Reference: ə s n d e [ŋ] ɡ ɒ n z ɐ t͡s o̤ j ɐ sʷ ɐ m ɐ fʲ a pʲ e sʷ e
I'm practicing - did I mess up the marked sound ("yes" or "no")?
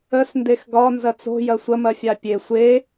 yes